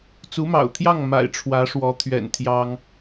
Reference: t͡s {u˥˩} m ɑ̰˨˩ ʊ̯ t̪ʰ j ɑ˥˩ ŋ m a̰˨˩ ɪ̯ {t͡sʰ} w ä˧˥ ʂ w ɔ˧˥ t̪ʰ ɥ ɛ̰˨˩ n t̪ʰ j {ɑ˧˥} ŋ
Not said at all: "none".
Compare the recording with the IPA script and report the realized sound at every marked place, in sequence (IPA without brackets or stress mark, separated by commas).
u˧˥, ʈ͡ʂʰ, ɑ˥